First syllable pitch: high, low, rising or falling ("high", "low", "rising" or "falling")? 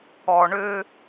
low